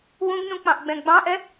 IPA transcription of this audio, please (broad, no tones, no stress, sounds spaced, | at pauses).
w ũ ɡ n ũ k͡p ɑ̃ ʔ ɡ͡b ɛ̃ ɡ͡b ɑ̃ ʔ ɛ